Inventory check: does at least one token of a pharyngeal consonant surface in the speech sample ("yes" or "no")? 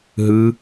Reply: no